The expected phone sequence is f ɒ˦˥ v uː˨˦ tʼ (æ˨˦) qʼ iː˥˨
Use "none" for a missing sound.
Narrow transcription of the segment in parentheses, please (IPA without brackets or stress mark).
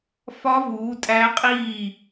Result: æ˦˥